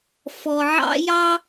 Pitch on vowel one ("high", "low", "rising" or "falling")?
low